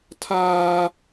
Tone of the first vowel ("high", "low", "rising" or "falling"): high